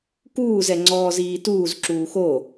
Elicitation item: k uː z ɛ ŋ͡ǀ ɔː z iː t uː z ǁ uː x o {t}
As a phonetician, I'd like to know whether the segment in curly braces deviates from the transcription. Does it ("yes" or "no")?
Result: yes